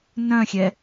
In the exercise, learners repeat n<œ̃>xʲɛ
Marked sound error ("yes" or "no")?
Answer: no